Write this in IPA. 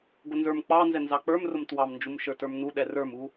ɡʷ ʌ n z ə˞ m k͡p ɑ n z ɛ n z ɑ k͡p ə˞ m r ʊ m t w ɑ m n d͡ʒ u m ʃ ə˞ t ə˞ m n u ɗ ɛ r ə˞ m u

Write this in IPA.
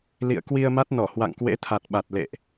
l ḭ˧˨ ə̯ k w i˧ ə̯ m a˦˥ t̚ n ɔ˧˩ h w a̰˧˨ ŋ k w ḛ˧˥ t̪ʰ a˨˩ t̚ ɓ a˨˩ t̚ l ḛ˧˨ ʔ

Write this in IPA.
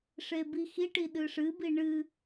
ʂ e b i x i ʈ i ɗ ɨ ʂ ɨ b i ɳ ɨ

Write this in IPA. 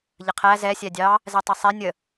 ʎ ə qʰ æ z ɛ sʲ æ dʲ ɑ | z ɛ tˤ ɛ sˤ ɛ nʲ ə

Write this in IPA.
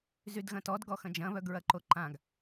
z y d ɣ ɐ̃ t ɔ d ɡ ɔ x ɐ̃ d͡ʒ ɐ̃ β œ ɡ ɹ ɐ ǃ o ǃ ã ɡ

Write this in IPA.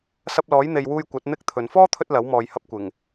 s ɐ˧ p̚ l ɔː˨˥ j n̪ e˨ j w uː˧ j kʷ ɐ˨˥ t̚ n̪ ɪ˥ k̚ t̪ʰ ɵ˨ n f ɔː˥ t̪ʰ ɵ˧ t̚ l ɐ˨˥ w m ɔː˨ j h ɐ˧ p̚ kʷ ɪ˨˩ ŋ

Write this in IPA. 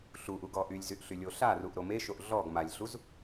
ɬ u ʔ u ɡ ɔ ʔ y lʲ z y ʔ ɬ y lʲ o ɬ a r u ʔ ɾ o m e ʃ o ʔ ɮ ɔ ɡ m a lʲ ɬ u z

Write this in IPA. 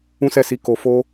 ũ˦ s ɛ˦˨ s i˧ k o˨ f o˧

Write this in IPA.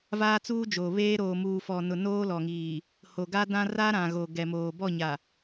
v aː˦ t͡s uː˦ d͡ʒ oː˨ β eː˦ ɾ oː˨ m uː˨ f ɔ˨ n ʊ˨ n oː˦ l ɔ˨ ŋ iː˨ | h o˨ ɡ a˦ d ã˦ r a˦ ɾ ã˨ ɣ o˨ ɡ ɛ˨ m oː˨ b ɔ˦˨ ɲ a˨

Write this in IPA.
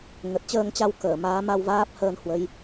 ŋ ə˨˩ t̚ t͡ɕ əː˧ ŋ t͡ɕ a˧ w k əː˧˩ m aː˨˦ m a˧ w v aː˦˥ p̚ h əː˧ n h w ə˨˦ j

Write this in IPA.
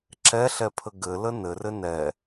ǁ ɛ ɬ ɛ pʰ ə ɡ ɘ l ə n ɘ r ɘ n ɛ

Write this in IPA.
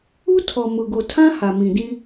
u˦ tʰ ɔ˨ m ʊ˨ ɡ o˨ tʰ ã˦ h a˨ m ĩ˨ d ĩ˦

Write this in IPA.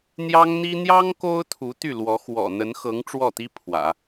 n̪ j ɑ˥ ŋ n̪ i˥ n̪ j ɑ˥ ŋ k o˥ ʊ̯ t̪ʰ u˧˥ t̪ y˥˩ l w ɔ˧˥ x w ɔ̰˨˩ n̪ ə˧˥ n x ɤ˧˥ ŋ ʈ͡ʂ w ɔ˥˩ t̪ i˥ pʰ w ä̰˨˩˦

